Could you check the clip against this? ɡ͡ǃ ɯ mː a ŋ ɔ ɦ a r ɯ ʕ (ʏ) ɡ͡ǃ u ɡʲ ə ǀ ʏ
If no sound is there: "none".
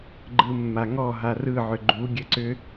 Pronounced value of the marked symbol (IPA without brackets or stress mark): ʏ